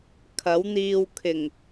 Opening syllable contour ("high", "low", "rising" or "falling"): rising